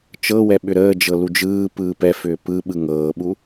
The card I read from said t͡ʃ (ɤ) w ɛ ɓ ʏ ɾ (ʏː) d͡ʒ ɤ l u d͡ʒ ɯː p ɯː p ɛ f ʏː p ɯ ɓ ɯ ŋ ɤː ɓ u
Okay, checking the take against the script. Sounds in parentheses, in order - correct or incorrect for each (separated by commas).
correct, incorrect